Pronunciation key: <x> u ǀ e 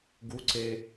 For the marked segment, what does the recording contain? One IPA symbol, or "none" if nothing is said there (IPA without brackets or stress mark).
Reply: ɡ